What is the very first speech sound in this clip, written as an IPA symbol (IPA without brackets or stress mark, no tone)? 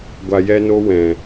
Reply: ɡʷ